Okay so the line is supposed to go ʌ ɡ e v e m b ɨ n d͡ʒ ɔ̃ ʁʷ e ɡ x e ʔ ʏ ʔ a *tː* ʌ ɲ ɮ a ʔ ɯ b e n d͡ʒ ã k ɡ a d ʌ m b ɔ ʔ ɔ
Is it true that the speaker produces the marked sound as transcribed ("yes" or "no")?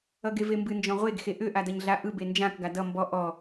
no